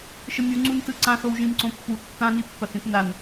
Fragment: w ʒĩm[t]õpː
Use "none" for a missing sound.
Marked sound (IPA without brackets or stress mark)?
ǀ